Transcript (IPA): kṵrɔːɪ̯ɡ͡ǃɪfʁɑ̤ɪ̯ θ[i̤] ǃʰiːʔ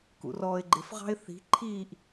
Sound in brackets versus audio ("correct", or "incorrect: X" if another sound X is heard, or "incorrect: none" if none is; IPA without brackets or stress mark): correct